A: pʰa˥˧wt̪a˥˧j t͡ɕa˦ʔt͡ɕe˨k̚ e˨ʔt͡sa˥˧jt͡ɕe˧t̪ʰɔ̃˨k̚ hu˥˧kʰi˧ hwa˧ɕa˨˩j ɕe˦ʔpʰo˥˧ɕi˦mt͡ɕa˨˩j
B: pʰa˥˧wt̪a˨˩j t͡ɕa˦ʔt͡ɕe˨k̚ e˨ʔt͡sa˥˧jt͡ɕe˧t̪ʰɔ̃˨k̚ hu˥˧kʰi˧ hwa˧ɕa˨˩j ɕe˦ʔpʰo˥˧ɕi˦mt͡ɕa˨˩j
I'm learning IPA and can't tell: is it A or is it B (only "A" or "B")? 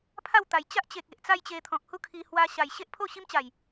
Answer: B